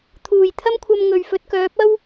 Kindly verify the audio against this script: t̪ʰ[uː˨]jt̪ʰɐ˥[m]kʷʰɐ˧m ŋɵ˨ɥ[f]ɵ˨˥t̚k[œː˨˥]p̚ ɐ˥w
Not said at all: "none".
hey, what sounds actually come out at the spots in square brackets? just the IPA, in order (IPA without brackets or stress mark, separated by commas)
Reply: uː˨˩, m, f, œː˨˥